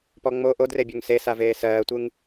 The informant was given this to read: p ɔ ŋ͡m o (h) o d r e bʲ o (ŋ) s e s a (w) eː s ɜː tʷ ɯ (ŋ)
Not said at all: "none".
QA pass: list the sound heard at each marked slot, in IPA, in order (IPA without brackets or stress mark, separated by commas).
ʔ, ŋ, v, ŋ